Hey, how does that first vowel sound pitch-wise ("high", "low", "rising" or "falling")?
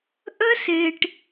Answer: high